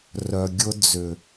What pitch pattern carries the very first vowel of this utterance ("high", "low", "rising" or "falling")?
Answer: low